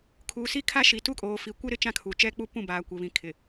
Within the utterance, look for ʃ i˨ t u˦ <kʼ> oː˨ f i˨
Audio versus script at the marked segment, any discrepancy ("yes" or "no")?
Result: no